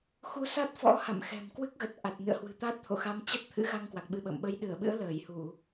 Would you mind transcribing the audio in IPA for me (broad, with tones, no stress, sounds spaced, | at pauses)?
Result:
x u˧ s a˦˥ t̚ f ɔ̰˧˥ h a̰˧˨ m x ɛ̤˨˩ m k w ɨ˦˥ k̚ ɣ ə˨˩ t̚ ʔ a˨˩ t̚ n ɨ̰˧˨ ə̯ h w ɨ̤˨˩ t̪ a˦˥ t̚ t̪ʰ o̰˧˨ x a˧ m t͡ɕ ə˦˥ t̚ t̪ʰ ɨ̰˧˥ ɣ a˧ ŋ k w a˨˩ k̚ ɓ ɨ˧ ɓ ə̰ː˧˨ m ɓ ə˨˦ j ɗ ɨ˧˩ ə̯ ɓ ɨ̰˧˥ ə̯ l əː˧˩ j h u˧˩˨